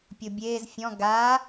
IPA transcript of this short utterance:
pʲobʲeːz fʲɔ̃ ɡaː

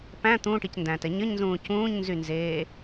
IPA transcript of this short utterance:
pæ̃ t̪ũːʈicndæ̃ːtɛ ɲəɲnzũː cũːɲnzynzeː

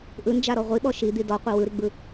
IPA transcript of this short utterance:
ʔɯnd͡ʒaɾɔ ʁʷiɓɔ ʃid̪i dɔqʷɛ wɯɾiɡ͡bɯ

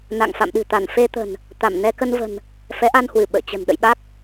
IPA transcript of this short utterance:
na̰˧˨ŋ fa̰˧˨mɗɨ̤˨˩t̪a˧˩n fe˧t̪ə̤˨˩n | t̪a˧˩m nɛ˧kə˧nvə̤˨˩n | fɛ˨˦ʔa˧nhwɨ˧˩ ɓə̰ː˧˨t͡ɕə̤˨˩n ɗə̰˧˨jɓa˦˥k̚

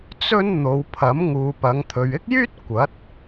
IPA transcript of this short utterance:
t͡sɵ˥n n̪o˨˧wpʰɐ˨˥m ŋuː˨pɐ˨˧ŋt̪ʰɵ˨ɥ ɪ˥k̚jyː˥t̚ kʷɐ˨˥t̚

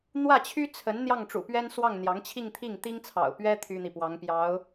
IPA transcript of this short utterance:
n̪wä˥˩t͡ɕʰy˥t͡sʰə˧˥n n̪jɑ˥˩ŋʈ͡ʂṵ˨˩pɥɛ˥nswɑ˥˩ŋ n̪jɑ˧˥ŋt͡ɕʰi˥˧ŋt̪ʰi˥˩ŋ t̪i˥ŋt͡sʰɑ̰˨˩ʊ̯pɥɛ˥ t̪ʰy˥n̪i˨pwɑ˧˥ŋpjɑ˧˥ʊ̯

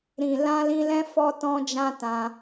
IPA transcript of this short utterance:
ɾĩ˨ lã˧lĩ˧lɛ̃˦ fɔ˦tɔ̃˦d͡ʒã˦tã˧

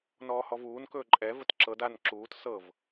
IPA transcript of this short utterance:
nɔːhɔvuːn kɵːǃʼɛ vətǁɤd an ǁuːt sɤv

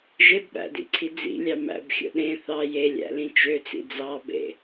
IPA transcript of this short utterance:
ʒebɓæ̰dḭǀʰi d͡zḭlʲɑ mæ̰bxʲo̰ ɗẽ θɑ jelʲæ̰lĩ t͡ʃøt͡sḭ d͡zɑbḛ

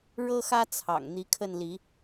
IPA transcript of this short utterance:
ɻɤ˦xä˦t͡sʰɑ̰˨˩ŋ n̪i˨˦kʰə˥˨nli˨˦

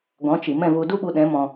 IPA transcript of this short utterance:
ɡɔ̃˨˦t͡ʃi˨ mɛ̃˦˨vu˧ du˦ɓu˧ ɗɛ̃˨˦mɔ̃˧

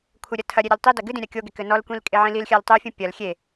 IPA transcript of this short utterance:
kʷʰɘɾʲɐ tʰɐ ɾʲeɾʲɔltˤidɐ ɡɨdĩ ɾʲakʲoɡe kɘnɔlkʷĩl kʼeʕĩlilxʲal tˤufʲũ pʲɐl xʲe

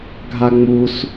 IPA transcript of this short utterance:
ɡʱaŋ͡mus

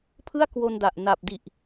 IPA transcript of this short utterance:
pʰɯ˥˩a̯kwo˧nda˨˩ʔ na˨˩p̚di˨˩ʔ

